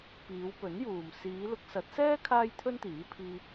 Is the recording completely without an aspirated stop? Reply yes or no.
no